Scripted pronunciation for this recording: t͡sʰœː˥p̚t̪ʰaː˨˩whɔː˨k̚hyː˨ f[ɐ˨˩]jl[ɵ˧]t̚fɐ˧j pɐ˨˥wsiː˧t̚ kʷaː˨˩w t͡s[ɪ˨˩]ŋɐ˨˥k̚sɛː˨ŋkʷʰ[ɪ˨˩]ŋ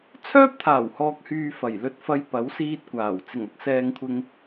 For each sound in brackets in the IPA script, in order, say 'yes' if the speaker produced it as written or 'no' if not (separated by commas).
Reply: yes, yes, yes, no